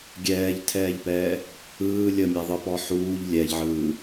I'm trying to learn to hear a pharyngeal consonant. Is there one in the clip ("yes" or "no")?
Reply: yes